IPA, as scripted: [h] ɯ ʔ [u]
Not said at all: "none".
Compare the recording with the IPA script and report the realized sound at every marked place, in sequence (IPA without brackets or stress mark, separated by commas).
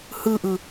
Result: h, ɯ